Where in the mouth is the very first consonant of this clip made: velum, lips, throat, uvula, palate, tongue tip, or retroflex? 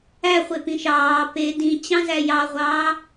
uvula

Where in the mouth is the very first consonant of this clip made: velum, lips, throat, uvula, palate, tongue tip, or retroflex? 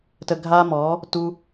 tongue tip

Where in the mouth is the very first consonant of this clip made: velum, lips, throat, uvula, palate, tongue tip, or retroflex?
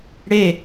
retroflex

